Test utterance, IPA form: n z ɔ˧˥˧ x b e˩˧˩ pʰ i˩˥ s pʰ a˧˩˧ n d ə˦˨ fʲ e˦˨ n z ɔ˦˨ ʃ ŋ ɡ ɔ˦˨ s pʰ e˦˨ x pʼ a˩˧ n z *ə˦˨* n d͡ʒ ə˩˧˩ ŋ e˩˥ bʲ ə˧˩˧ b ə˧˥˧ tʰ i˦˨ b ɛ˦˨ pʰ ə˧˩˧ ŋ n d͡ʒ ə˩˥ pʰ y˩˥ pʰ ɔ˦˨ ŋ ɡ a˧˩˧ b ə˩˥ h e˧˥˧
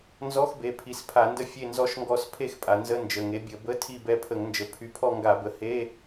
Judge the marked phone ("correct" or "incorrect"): incorrect